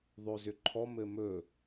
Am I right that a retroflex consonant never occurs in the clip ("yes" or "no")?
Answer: yes